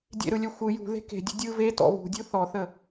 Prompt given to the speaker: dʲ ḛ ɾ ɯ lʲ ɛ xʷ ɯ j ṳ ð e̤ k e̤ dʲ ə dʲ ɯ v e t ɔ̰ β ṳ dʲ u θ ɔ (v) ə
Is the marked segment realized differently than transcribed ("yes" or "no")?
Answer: yes